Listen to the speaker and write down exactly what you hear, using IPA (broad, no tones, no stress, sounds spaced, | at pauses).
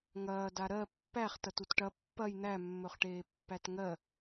ŋ ɐː d a ɾ ɜ pː æ χ t ɐ t u t ʈ ɐ pː ɐ j n̪ æ mː ɵ χ ʈ eː pː æ t ŋ ɜ